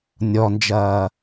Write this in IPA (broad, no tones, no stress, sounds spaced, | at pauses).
nʲ ɔ n d͡ʒ ɐː